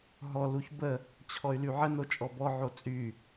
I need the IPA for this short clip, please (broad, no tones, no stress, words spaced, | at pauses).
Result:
ɦɔ luçbə | t͡ɕʰɔy̯lyʕə not͡ʃʼɔbɔ ʕot͡sʼy